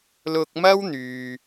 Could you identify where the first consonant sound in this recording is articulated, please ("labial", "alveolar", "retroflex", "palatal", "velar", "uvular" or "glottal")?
alveolar